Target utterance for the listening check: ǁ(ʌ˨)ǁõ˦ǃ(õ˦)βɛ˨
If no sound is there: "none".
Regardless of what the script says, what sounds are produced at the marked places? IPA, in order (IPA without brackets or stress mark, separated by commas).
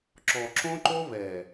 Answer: ɔ˨, o˦